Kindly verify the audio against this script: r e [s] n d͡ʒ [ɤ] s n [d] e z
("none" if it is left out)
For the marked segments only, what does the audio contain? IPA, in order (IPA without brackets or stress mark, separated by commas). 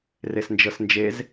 s, ɤ, d͡ʒ